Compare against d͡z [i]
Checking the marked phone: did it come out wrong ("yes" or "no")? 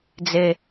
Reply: yes